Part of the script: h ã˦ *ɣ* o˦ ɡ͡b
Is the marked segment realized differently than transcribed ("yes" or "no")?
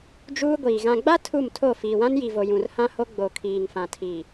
yes